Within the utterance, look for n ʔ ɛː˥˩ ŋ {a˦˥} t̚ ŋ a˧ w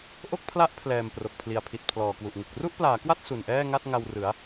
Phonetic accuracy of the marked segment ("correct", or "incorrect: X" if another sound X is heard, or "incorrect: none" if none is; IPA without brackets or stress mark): incorrect: a˥˩